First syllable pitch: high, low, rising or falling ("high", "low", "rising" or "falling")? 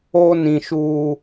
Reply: high